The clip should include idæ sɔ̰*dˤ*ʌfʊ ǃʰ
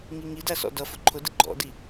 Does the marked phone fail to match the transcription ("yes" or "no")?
yes